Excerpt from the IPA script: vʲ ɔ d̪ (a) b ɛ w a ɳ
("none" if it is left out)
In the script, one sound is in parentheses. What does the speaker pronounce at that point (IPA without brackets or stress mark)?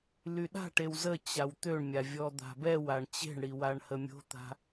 a̤